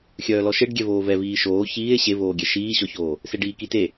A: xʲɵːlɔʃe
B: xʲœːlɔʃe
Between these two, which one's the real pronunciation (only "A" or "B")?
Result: B